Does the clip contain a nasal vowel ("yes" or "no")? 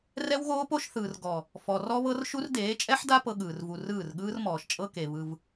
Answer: no